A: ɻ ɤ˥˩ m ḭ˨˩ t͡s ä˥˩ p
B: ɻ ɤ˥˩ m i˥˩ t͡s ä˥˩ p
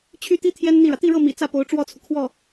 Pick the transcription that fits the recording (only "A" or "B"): A